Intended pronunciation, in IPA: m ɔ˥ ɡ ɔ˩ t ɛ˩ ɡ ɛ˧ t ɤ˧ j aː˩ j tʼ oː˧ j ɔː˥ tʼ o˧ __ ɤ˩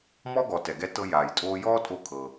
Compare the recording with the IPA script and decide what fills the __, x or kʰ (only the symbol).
kʰ